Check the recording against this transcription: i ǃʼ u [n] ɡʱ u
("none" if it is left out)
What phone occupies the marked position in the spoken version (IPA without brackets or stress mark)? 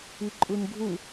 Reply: n